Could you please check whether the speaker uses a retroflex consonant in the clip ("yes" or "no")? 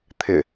no